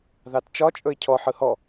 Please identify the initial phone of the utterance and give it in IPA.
ð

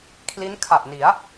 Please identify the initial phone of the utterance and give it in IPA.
kʰ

